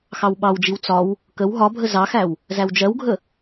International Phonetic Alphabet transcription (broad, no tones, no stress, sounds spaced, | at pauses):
x ɑ w ɓ ɑ w d͡ʒ i w t͡s ɒ w | k ə w ɦ ɒ bʱ ə z ɑ x æ w | z æ w d͡ʒ ɜ w ɡʱ ə